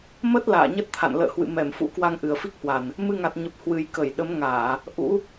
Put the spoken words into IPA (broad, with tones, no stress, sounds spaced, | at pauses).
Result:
m ə˦˥ t̚ l a̰ː˧˨ ɲ ə˦˥ t̚ t̪ʰ a̰˧˨ n l ə̰ː˧˨ h w ɨ̰˧˨ m ɛ˧˩ m f ṵ˧˥ k w a˧ ŋ ʔ ɨ˨˩ ə̯ f i˦˥ k̚ h w a˨˩ n | m ɨ˧ ŋ a˨˩ t̚ ɲ ə˨˩ p̚ h w ɨ˨˩ j k ə˧˩ j ɗ ə˨˦ m ŋ aː˧˩˨ | ʔ ṵ˧˥